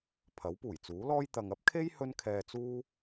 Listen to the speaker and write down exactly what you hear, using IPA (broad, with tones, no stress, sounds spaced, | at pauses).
pʰ ɐ˨˥ w p uː˨˩ j t͡s uː˨˥ l ɔː˥ j t̪ ɐ˨ ŋ ɐ˥ p̚ kʰ e˥ j h ɵ˥ n kʰ ɛː˧ t͡s uː˥